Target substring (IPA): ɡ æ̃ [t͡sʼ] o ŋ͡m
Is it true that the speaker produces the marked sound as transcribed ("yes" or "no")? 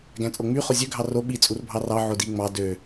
yes